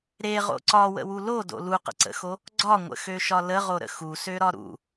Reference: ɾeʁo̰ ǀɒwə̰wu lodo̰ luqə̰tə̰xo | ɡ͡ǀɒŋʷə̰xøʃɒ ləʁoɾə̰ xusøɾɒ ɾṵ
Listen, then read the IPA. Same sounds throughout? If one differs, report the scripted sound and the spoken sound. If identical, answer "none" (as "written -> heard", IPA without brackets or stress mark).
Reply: t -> ǀ